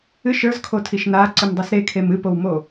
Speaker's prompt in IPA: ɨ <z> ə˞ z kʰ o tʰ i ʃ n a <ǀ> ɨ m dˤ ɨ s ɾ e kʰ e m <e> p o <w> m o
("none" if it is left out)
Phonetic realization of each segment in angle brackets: ʃ, ǀ, ɨ, w

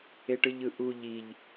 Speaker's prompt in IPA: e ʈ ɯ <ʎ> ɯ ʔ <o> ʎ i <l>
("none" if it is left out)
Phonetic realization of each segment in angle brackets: ʎ, u, ʎ

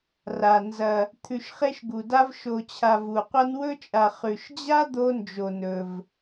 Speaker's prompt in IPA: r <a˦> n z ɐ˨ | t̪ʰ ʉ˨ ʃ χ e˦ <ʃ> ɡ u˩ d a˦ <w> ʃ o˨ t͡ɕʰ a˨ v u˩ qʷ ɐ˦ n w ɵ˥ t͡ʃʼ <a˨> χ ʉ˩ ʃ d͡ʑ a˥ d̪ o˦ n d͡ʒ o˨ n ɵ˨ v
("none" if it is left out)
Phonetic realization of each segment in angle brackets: a˩, ʃ, v, a˨

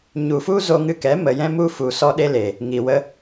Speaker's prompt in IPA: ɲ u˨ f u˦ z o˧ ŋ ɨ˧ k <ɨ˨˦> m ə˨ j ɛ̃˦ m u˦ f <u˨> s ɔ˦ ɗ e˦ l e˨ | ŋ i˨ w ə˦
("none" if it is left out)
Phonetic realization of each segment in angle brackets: ɛ˨˦, u˨

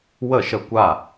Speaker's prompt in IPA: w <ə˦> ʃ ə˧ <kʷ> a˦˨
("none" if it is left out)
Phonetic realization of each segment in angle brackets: ə˦˨, kʷ

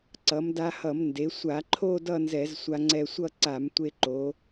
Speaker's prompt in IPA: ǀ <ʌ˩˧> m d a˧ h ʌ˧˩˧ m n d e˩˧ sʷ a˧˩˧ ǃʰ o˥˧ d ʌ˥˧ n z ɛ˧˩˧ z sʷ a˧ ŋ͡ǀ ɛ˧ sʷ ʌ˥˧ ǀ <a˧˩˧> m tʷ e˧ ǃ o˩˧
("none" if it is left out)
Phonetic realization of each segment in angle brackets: ʌ˩˧, a˧˩˧

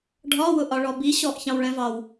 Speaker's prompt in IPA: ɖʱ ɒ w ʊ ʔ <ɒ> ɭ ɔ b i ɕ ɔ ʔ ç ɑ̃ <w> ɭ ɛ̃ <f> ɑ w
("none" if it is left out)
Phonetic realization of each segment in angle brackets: ɒ, w, v

